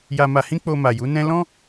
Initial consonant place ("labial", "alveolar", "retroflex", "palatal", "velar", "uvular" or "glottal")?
palatal